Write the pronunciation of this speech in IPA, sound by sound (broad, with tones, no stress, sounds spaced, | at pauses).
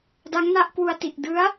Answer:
d a˦˥ ŋ n a˥˩ ʔ k w u˧ a̯ t i˨˩ ʔ d ɯ˦˥ a̯